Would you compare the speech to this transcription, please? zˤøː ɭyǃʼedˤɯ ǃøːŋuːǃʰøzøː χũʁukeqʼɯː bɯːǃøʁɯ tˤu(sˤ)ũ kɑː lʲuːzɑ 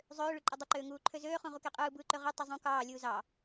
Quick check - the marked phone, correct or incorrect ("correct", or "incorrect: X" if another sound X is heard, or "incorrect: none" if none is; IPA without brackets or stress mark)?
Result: incorrect: zˤ